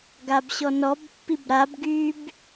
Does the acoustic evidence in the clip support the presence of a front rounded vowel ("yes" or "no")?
yes